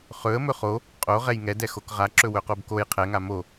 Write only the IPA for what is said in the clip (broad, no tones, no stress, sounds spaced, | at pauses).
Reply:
χ ɵ ə̯ m ɵ χ o | qʼ o ʁ ɛ j ŋ ɛ d ɛ x o k ʁ a ǁ ɵ w ɵ q o b k o j qʰ ɛ ŋ a m o